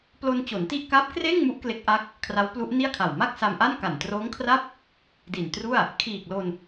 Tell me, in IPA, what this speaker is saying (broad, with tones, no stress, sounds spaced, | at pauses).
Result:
p l o˧ n t͡ɕ o˩˦ n t i˥˩ ʔ k a˦˥ p̚ k r eː˥˩ ŋ m u˦˥ ʔ k l e˦˥ k̚ ʔ a˦˥ k̚ | kʰ r a˦˥ w p l u˦˥ ʔ n i˥˩ a̯ kʰ a˨˩ w m a˥˩ k̚ s a˧ m ʔ a˥˩ n k a˨˩ n t r oː˦˥ ŋ kʰ r a˥˩ p̚ | d i˨˩ n t r u˥˩ a̯ | kʰ iː˨˩ k̚ l o˧ n